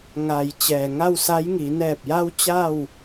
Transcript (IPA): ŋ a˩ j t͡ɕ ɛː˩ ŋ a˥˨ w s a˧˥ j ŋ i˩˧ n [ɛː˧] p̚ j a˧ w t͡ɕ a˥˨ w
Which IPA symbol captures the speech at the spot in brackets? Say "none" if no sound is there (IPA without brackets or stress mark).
ɛː˧˩